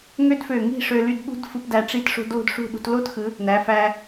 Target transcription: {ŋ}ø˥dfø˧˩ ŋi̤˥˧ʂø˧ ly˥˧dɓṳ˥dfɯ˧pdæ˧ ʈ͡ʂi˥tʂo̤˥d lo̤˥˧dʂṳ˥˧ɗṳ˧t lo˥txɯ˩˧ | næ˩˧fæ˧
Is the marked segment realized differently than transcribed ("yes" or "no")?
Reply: no